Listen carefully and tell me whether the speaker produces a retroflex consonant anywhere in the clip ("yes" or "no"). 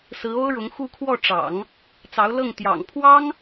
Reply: yes